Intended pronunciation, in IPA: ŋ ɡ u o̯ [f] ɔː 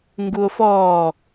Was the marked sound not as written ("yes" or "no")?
no